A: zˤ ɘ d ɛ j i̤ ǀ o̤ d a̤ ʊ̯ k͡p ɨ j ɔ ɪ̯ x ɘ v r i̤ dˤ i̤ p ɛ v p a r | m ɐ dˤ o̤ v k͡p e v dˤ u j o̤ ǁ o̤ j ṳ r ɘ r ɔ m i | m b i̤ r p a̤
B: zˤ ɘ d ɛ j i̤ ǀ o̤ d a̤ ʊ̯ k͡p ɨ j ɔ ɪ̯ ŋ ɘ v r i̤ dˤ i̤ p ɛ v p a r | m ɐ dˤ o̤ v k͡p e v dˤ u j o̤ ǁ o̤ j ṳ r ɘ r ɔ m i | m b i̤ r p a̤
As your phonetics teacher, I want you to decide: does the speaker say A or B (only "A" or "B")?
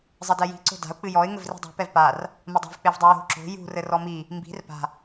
B